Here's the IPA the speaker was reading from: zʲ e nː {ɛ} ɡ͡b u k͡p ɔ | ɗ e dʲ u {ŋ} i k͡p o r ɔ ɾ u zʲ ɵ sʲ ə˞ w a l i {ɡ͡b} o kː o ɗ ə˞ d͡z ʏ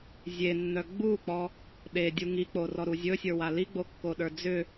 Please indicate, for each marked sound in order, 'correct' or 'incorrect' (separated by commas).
incorrect, correct, correct